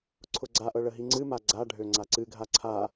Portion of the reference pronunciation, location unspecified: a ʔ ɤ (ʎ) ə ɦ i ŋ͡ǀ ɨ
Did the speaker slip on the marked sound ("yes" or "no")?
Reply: yes